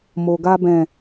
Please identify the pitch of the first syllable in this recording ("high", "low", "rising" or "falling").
low